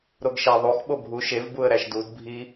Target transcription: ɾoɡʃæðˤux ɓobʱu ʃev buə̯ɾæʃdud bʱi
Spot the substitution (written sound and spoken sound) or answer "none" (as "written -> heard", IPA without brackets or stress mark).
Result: none